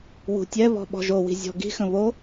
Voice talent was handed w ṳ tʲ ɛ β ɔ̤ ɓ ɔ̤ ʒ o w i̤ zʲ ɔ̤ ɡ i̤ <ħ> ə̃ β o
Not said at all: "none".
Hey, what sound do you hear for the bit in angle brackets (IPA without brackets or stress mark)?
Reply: x